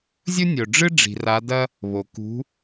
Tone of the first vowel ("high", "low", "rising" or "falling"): high